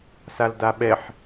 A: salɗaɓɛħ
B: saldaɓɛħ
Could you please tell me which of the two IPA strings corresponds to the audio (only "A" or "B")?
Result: B